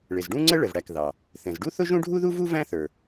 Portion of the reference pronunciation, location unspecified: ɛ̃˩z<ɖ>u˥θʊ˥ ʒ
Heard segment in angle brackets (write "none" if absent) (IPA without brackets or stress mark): ɖ